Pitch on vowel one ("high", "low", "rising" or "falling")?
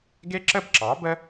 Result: high